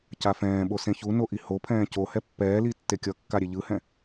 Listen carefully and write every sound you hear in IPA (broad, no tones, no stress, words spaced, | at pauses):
cafɛ̃ːɓo sẽçuno ʔihopʰɛ̃ː co hɛpːɛːli tːekʲʌkːa ɾʲeʎɯhɛ̃